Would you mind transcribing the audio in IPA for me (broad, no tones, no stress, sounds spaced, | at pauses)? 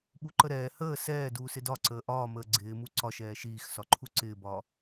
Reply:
ɓ u ǃ ə ɾ ɛː h əː s ɛː d uː s ɪ d ɒ ǀ əː ʔ ɒː m əː ɡ͡ǀ ɪː m u ǀ ɒ ʃ ɛː ʃ iː x s ɒ ǃʰ u ǀ ɪː b ɒː